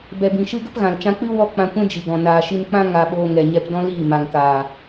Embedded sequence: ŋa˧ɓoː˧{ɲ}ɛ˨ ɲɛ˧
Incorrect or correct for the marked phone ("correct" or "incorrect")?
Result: incorrect